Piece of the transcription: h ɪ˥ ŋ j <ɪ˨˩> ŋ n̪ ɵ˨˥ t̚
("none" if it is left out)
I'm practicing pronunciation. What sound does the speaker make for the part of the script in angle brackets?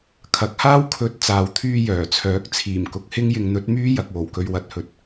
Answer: ɪ˧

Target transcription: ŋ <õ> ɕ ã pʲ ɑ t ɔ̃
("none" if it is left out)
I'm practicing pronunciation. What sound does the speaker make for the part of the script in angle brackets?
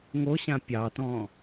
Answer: o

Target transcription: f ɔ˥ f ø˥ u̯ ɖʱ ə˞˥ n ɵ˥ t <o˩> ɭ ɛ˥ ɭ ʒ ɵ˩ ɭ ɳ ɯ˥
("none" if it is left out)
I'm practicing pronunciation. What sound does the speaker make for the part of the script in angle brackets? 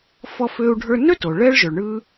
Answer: o˩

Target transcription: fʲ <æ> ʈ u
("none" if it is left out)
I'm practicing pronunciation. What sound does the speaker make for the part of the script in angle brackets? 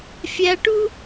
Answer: æ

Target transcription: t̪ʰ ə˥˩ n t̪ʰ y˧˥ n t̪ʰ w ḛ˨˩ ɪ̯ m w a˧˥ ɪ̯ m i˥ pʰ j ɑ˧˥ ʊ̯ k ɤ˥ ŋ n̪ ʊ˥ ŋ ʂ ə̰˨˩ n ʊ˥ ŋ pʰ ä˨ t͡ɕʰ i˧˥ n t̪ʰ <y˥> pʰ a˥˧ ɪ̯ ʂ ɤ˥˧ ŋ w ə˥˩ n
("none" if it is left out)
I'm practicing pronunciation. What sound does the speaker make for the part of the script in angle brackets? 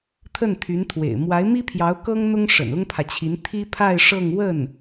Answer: i˥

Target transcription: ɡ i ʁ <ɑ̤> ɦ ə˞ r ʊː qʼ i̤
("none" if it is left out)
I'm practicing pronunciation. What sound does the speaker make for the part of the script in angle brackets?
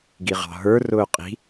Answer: ɑ̤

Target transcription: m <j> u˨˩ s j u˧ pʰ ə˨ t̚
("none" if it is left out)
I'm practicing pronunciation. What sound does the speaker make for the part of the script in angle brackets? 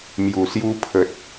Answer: j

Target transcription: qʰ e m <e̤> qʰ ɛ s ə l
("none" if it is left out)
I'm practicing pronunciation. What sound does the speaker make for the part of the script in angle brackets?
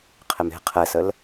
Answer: e̤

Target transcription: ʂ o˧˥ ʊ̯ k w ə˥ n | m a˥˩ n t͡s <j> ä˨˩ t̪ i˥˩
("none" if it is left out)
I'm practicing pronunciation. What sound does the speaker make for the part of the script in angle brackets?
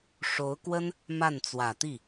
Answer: w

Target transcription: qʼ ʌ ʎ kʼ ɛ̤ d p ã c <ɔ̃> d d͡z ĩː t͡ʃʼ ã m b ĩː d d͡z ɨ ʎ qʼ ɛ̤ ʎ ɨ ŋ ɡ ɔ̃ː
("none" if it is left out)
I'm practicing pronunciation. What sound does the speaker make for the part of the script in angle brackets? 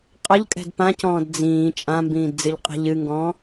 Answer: ɔ̃ː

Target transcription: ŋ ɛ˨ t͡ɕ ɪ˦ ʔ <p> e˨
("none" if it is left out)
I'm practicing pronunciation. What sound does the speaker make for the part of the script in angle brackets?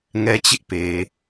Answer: p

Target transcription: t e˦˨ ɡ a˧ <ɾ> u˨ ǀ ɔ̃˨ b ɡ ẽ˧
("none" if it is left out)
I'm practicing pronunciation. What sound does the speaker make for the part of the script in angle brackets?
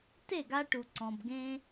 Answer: ʈ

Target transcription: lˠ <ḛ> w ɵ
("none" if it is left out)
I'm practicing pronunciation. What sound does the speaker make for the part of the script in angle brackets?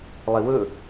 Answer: e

